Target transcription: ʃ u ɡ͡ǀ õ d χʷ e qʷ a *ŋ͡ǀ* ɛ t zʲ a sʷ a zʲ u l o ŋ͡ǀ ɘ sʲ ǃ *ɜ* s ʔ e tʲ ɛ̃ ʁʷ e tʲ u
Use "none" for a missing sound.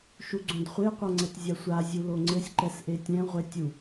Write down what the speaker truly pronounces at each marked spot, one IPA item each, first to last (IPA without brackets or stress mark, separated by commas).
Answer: ŋ͡ǀ, ɛ